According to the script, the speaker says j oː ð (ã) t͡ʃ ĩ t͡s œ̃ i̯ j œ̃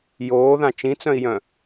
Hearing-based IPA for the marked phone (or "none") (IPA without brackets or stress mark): ã